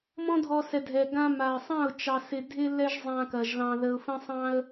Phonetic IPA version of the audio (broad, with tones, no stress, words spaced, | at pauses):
mɔ̃˦dʱɔ˧sɛ˨dʱɛ˨ ɡã˧ma˨ə̯sˤã˦˨ʊ̯ t͡ʃɑ˧sɪ˧ dʱɪ˦lɛ˦ʒ zˤã˧ kɐ˧ʒlɑ̃˦ ðə˧ʊ̯fə̃˦sˤɑ̃˦ə̯